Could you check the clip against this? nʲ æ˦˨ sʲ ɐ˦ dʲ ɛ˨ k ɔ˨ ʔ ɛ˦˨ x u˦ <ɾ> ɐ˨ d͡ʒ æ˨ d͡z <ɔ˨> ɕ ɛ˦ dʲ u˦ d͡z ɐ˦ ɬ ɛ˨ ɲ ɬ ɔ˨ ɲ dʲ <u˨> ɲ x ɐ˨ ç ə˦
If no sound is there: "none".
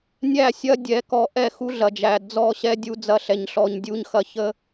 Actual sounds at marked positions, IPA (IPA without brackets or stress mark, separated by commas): ɮ, ɔ˦˨, u˨